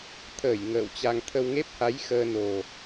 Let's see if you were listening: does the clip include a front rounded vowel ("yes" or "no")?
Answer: no